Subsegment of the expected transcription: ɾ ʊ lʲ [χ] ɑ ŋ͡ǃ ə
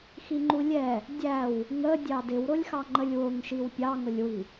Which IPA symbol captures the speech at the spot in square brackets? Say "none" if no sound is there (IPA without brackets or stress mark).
x